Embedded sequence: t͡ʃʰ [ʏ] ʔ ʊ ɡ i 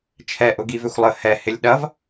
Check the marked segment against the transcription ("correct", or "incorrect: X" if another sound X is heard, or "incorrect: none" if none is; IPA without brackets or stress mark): incorrect: ɛ